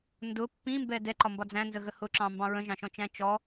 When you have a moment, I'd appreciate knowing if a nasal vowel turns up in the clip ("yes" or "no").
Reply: yes